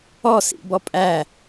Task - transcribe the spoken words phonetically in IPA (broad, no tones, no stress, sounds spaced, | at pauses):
ɔ s ḭ b ɔ pʼ æ